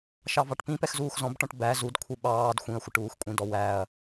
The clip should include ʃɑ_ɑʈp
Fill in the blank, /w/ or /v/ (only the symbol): v